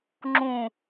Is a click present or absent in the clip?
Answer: present